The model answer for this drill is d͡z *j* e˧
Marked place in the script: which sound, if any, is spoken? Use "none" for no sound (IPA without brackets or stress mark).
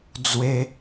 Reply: w